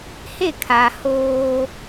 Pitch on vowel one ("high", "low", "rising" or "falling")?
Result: falling